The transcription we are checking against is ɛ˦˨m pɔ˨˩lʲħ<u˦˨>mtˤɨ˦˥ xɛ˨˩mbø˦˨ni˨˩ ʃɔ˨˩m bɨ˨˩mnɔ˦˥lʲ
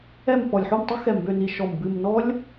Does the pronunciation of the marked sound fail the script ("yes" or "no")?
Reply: no